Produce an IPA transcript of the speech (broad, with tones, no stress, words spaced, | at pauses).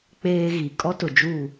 k͡peː˦ɣi˨ kʼɔ˦tʊ˨d͡ʒuː˦˨